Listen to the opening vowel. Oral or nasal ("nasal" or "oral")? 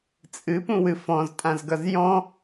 oral